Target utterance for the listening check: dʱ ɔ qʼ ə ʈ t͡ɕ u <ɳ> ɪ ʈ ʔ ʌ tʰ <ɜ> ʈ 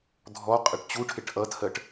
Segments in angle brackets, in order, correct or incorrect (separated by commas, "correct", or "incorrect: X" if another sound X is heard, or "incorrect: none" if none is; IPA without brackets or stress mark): incorrect: ʈʰ, correct